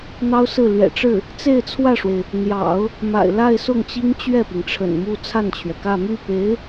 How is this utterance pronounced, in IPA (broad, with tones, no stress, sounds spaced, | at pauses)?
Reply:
n̪ ɑ˥ ʊ̯ s ɹ̩˥˩ l ɥ ɛ̰˨˩ ʈ͡ʂ ɻ̩˥˩ | t͡s e˥˧ ɪ̯ t͡sʰ w ä˥˩ ʂ w e˩ ɪ̯ | n̪ j ɑ̰˨˩˦ ʊ̯ | m a̰˨˩ ɪ̯ l a˥˧ ɪ̯ s ʊ˥˩ ŋ t͡ɕ i˥ ŋ t͡ɕ ɥ ɛ˥˩ p i˩ ŋ ʈ͡ʂʰ ə̰˨˩ n m u˥˧ t͡sʰ a˥˩ n t͡ɕʰ ɥ ɛ˩ k ä˥˧ m y˥˩ p e˧˥ ɪ̯